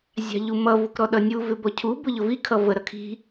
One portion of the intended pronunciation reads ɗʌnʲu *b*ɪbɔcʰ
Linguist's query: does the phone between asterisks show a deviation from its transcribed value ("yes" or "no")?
yes